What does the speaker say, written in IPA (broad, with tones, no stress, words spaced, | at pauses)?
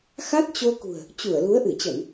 xa˦˥t̚t͡ɕo˧kṳ˨˩ə̯ | t͡ɕu˧˩ə̯lu˨˦ə̯ ʔɨ˧˩t͡ɕə˧˩˨n